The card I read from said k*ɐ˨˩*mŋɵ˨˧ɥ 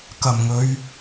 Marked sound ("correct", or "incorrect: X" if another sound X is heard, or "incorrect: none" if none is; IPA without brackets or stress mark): correct